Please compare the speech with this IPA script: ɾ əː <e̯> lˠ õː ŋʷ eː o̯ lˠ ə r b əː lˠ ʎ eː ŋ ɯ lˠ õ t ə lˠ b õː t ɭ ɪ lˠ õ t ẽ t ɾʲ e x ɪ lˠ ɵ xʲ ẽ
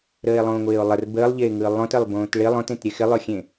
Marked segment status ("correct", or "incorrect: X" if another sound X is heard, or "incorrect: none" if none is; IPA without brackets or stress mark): correct